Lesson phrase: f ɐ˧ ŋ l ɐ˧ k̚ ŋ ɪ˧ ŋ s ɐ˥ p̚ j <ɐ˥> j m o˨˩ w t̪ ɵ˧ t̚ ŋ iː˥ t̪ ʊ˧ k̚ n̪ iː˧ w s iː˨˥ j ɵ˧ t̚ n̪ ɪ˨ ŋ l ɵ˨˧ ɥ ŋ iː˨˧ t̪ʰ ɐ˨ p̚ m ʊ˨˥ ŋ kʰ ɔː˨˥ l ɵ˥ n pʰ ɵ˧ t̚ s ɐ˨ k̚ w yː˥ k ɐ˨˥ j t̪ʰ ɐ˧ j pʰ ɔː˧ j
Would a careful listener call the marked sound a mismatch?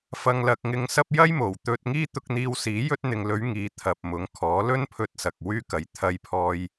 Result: no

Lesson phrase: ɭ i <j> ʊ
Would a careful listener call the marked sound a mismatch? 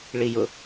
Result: no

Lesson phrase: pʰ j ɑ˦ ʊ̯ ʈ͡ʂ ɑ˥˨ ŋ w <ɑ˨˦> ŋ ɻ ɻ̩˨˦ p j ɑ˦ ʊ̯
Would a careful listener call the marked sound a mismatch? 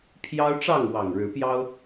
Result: yes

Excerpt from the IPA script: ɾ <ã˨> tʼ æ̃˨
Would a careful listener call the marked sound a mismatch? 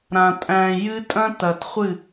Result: no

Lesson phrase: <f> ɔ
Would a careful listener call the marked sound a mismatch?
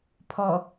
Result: yes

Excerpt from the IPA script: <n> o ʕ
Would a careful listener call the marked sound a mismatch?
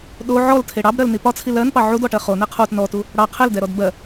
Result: yes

